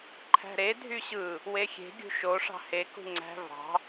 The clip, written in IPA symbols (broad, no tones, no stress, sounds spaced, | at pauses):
ǃʰ æ̤ ɾ e dʱ y ɕ ɯ | w e xʲ e̤ ɡʲ ṳ ʃ o ʂ ɑ̤ h e k ṳ ŋ͡ǀ æ̤ v ɑ̤